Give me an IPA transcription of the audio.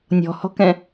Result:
nʲ ɔ̤ h ɔ̤ k ɛ̃

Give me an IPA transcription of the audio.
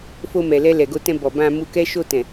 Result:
f o˧ m ɛ˨ l ɛ˧ l ɛ˨ ɡ o˧ t ɛ̃˧ b ɔ˨ b ã˧ m u˧ k ɛ˦ ʃ o˧ t ɛ̃˨

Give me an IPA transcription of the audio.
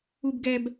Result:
u˧ b ɡ ɛ˧ b

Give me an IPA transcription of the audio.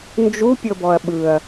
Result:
n d͡ʒ u pʲ ɤ b ɔ ɐ̯ ɓ ɯ ɐ̯

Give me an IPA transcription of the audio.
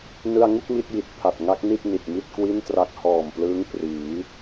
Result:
n ɯ˧ a̯ ŋ u˥˩ k̚ m i˦˥ t̚ j i˨˩ t̚ pʰ a˨˩ t̚ ŋ a˦˥ k̚ n i˥˩ t̚ n i˨˩ t̚ m i˥˩ t̚ k w i˥˩ n t r a˦˥ k̚ h ɔː˨˩ m p l ɯː˦˥ ŋ p r iː˩˦

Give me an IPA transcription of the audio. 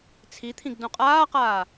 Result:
t͡sʰ i t̪ʰ ĩ ɡ d õ qʼ aː q aː

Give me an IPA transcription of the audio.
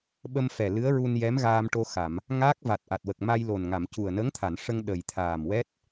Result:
ɓ ə˧ m f ɛ˨˩ l ɨ˧˥ ə̯ ɹ u˧ n j ɛ˧˥ m ɣ aː˧ m ʈ o˧ x a˨˩˨ m | ŋ aː˦˥ k̚ v a˨˩ t̚ ʔ a˨˩ t̚ w ə˨˩ k̚ m a˧ j l o˨˩ n ŋ a˨˩˨ m c u˨˩ ə̯ n ə˧˥ ŋ t̪ʰ a˨˩˨ n ʂ ə˧ ŋ ɗ ə˨˩ j t̪ʰ aː˨˩ m w ɛ˦˥ t̚

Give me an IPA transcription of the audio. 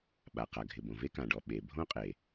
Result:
ɓ a˩ q a˩ ɡʱ ɪ˩ b õ˩ v e˥ k ã˩ ɖ ɔ˩ ɓ e˩ bʱ õ˥ qʼ e˩

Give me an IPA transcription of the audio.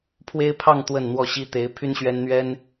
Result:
pʰ w e˥ ɪ̯ pʰ ɑ˥˧ ŋ t̪ w ə˥˧ n n̪ w ɔ˥˩ ɕ i˥ t̪ e˧˥ ɪ̯ pʰ y˥ n ɕ ɥ ɛ˥ n n̪ ɥ ɛ˥ n

